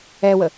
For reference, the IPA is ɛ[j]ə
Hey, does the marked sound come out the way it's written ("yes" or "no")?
no